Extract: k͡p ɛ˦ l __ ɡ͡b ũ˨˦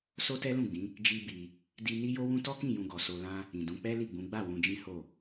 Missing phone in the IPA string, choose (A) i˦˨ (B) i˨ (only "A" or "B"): A